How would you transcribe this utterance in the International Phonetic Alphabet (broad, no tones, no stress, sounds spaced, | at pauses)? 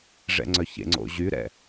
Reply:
ʐ ɛ̰ ŋ͡ǀ œ ç ḛ ŋ͡ǀ o̰ ʑ y ɾ ɛ̰